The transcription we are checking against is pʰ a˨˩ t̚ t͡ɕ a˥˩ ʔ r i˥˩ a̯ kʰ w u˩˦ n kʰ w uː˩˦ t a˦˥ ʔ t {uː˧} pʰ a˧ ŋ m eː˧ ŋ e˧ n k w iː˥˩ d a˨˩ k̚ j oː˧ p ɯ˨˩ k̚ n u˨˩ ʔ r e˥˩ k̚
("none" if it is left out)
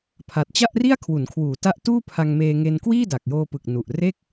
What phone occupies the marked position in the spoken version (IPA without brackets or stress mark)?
uː˥˩